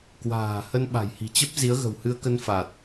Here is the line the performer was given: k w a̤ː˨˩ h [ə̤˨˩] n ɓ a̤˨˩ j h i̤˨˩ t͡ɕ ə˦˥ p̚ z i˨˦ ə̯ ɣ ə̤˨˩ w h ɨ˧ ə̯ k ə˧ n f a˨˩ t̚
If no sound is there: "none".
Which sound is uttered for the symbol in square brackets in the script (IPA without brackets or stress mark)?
ə˧